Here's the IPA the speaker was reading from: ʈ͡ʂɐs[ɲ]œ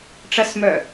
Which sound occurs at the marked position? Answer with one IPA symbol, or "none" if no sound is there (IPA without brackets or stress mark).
m